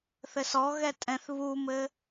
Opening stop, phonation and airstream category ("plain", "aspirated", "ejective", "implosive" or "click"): ejective